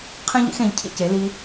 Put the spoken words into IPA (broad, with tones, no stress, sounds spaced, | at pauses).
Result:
qʰ ẽ˦ ʎ ḭ˩˥ x ẽ˩˥ ʎ cʰ ḭ˦ c e˩˥ l i˦